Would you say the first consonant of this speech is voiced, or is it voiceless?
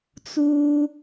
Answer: voiceless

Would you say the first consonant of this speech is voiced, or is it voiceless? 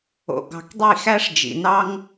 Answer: voiced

